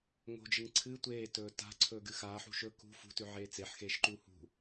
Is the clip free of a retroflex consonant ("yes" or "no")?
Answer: yes